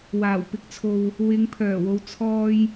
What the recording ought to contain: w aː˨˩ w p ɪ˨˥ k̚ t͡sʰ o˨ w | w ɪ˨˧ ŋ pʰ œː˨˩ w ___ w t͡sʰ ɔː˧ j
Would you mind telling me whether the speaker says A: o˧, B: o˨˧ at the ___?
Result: B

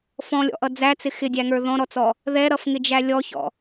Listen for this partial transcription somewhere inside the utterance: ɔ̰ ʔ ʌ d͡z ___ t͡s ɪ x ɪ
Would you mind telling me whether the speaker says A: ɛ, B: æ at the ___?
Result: B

